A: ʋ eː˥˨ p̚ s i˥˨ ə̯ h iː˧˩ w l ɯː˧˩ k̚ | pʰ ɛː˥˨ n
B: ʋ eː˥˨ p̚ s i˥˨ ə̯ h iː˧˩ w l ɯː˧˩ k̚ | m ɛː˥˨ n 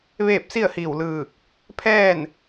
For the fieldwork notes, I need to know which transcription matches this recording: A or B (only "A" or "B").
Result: A